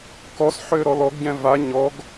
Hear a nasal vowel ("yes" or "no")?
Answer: yes